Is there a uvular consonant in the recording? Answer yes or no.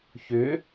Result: no